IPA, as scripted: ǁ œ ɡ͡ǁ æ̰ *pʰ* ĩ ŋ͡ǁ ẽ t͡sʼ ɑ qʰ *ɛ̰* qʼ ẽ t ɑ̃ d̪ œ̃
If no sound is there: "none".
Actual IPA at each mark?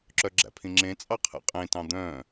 pʰ, ɛ̰

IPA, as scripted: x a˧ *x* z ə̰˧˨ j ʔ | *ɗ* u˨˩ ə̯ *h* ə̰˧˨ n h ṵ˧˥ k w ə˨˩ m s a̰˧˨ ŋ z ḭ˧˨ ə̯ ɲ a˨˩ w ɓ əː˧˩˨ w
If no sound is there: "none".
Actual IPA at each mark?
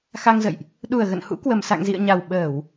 ŋ, ɗ, ɣ

